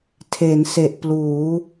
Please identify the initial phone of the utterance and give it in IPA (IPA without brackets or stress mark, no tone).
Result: tʰ